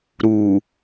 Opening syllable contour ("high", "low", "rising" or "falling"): low